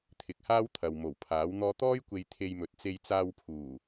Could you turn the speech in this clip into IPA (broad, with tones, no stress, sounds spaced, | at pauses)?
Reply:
t̪ʰ ɪ˨ k̚ h aː˥ w t̪ʰ ɐ˨ w m o˨˩ w pʰ aː˨˥ w n̪ ɔː˥ t̪ ɔː˥ j kʷ e˧ j t̪ʰ e˧ j m ɵ˨˥ t̚ t͡s e˧ j t͡s aː˧ w pʰ uː˨˩